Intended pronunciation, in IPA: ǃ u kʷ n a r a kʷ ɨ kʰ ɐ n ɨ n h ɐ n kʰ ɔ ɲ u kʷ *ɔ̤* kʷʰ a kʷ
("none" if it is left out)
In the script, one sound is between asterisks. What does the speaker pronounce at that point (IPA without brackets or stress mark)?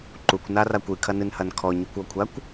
ɔ